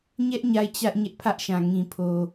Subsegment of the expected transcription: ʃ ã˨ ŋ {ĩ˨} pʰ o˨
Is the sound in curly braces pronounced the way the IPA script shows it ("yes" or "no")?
yes